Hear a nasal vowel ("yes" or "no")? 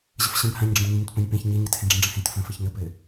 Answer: yes